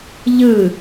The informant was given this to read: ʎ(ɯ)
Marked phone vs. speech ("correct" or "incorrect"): correct